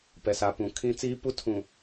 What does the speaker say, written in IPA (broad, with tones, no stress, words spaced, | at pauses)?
pɛ˨sa˨ pũ˨kʰĩ˦ t͡siː˦pu˦ tʰũ˨